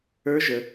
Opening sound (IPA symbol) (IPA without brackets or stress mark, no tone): ə˞